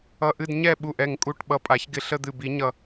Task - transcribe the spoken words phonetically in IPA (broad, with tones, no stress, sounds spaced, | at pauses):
ʌ˧˩ ʔ ɨ˥˨ d ɲ ɛ˥˨ ɓ u˧˩ ʔ ɛ˧˩ ŋ kʼ u˧˩ ʈ ɓ ʌ˧˩ pʼ a˨˩˦ ç ɡ ɪ˧˩ ɬ ə˥˨ d̪ ɨ˧˩ b i˨˩˦ ɲ ʌ˧˩